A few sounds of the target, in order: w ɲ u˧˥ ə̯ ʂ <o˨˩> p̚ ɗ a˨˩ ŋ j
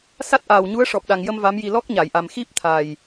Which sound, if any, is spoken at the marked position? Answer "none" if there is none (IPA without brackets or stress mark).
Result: ɔ˨˩